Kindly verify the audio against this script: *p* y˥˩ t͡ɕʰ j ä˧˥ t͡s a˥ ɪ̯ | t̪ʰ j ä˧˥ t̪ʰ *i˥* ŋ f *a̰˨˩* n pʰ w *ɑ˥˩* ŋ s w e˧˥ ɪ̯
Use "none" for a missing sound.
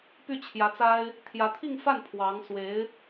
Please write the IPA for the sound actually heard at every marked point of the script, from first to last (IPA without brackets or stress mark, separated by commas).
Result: p, i˥˧, a˥˩, ɑ˧˥